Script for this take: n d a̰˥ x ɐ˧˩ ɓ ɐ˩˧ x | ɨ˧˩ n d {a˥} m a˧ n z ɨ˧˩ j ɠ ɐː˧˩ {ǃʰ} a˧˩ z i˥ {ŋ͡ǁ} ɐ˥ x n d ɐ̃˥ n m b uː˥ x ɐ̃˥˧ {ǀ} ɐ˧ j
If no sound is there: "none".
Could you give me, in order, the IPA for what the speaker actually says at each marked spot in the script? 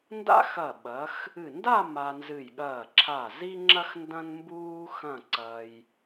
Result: a˥˧, ǁʰ, ŋ͡ǁ, ǀ

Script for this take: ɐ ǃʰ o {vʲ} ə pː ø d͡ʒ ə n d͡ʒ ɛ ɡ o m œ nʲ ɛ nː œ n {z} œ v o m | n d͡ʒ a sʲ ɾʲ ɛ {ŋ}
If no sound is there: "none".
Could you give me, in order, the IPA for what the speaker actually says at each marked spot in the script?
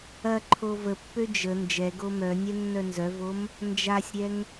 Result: v, z, ŋ

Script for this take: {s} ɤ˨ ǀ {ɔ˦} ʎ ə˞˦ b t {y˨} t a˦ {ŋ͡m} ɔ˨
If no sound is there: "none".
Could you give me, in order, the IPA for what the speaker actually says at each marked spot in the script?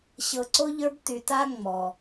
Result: ɕ, o˦, y˨, ŋ͡m

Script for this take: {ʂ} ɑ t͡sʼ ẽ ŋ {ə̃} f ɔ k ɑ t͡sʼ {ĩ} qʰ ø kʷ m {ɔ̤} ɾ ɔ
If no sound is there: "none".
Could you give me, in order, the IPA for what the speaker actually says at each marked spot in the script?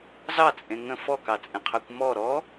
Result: z, ə̃, ẽ, ɔ

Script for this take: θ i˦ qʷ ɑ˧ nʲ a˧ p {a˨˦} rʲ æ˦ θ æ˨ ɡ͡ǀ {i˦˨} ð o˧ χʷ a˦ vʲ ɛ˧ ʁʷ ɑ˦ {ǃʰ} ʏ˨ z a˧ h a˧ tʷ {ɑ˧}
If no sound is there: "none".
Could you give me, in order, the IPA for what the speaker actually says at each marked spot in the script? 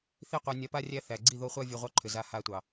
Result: a˦, i˦˨, ǃʰ, ɑ˨

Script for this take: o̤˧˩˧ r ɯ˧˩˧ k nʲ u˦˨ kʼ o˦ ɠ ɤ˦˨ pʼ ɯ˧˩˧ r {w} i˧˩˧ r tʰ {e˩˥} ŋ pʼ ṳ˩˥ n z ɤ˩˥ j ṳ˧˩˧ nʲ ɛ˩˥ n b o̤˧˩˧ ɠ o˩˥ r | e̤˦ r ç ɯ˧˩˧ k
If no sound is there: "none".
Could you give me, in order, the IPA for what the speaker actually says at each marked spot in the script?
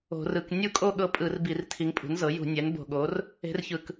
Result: b, i˩˥

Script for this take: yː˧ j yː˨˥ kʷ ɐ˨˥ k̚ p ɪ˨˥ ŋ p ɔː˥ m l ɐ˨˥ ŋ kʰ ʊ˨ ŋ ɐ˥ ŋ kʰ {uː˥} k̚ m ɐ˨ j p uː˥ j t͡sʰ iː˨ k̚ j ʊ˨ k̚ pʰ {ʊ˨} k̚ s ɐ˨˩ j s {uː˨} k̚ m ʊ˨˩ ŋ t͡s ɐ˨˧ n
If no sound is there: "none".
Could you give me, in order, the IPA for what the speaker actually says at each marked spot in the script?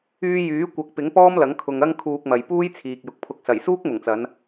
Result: uː˧, ʊ˧, uː˥

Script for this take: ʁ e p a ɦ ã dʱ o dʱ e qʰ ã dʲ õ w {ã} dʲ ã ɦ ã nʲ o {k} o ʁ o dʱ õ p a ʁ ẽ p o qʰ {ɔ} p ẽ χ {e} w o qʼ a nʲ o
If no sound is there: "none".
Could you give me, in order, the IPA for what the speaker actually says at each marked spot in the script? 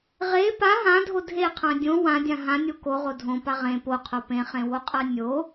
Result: ã, k, o, ẽ

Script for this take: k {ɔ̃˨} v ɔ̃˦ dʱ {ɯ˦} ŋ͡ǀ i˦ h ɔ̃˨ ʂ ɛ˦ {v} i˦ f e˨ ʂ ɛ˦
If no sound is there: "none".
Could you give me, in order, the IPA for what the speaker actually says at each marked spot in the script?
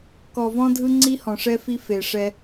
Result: ɔ˨, ɯ˦, f

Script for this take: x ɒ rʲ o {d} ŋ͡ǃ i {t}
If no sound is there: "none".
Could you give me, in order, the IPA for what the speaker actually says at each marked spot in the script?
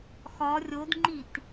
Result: d, t

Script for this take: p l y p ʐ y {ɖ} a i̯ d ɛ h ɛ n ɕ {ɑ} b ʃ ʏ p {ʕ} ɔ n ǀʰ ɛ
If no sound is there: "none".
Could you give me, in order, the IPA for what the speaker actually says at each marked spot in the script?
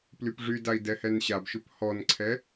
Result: d, a, h

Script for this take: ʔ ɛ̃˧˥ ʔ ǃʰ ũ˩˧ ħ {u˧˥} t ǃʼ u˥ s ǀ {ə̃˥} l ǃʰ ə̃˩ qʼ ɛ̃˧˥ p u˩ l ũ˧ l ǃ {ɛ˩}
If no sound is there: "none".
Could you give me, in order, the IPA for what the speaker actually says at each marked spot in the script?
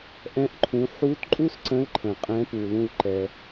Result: u˧˥, ə̃˧˥, ɛ˩

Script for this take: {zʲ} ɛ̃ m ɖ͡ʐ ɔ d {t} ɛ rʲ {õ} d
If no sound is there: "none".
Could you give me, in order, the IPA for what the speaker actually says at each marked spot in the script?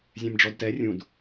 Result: zʲ, t, ũ

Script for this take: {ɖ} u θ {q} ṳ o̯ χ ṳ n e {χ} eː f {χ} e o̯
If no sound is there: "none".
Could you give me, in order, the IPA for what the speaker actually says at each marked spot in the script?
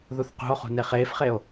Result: ð, q, χ, χ

